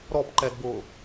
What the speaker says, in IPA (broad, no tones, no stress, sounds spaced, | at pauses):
ɾ ɔ p ǃ ɛ d b ʊː